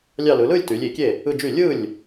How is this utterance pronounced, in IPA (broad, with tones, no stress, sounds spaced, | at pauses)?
lʲ ɑ˥˧ l ɯ˩˧ l ɯ˥˧ lʲ t y˩˧ lʲ i˧˩˧ kʲ e˥˩ | ɯ˥˧ d͡ʒ y˥˩ lʲ ɯ˥˩ lʲ